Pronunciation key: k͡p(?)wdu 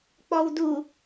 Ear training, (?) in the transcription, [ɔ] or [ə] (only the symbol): ɔ